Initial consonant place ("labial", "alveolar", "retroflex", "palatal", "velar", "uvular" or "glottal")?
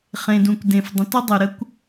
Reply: uvular